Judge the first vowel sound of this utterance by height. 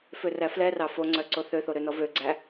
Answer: mid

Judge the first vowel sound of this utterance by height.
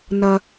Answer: low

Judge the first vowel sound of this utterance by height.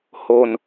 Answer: mid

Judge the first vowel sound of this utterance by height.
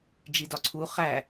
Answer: high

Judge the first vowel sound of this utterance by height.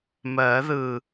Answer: mid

